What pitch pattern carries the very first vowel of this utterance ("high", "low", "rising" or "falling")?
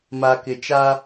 low